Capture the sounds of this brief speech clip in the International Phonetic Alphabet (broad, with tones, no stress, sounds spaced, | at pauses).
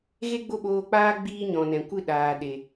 ɣ e˦ ɡ͡b o˦ ɓ oː˧ k͡p aː˦ ɡ͡b iː˦ ɲ ɔ̃˨ n ɛ̃˨ kʷ ɨ˦ ɗ aː˨ ɗ e˨